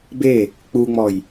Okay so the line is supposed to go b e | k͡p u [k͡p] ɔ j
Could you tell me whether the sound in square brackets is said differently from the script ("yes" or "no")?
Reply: yes